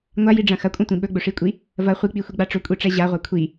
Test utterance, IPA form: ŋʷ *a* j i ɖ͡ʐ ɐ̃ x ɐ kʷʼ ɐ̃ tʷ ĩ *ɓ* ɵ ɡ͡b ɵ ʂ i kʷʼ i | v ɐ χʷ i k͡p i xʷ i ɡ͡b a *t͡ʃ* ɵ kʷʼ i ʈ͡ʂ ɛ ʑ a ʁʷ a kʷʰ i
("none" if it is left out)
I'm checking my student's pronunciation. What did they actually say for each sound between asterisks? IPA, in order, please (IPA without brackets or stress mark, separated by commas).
a, ɓ, ʈ͡ʂ